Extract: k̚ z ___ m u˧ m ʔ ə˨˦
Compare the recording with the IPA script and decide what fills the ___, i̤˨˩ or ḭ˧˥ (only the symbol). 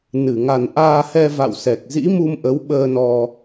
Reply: ḭ˧˥